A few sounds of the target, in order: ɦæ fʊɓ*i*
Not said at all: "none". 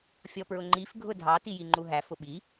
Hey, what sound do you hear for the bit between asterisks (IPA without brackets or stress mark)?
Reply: i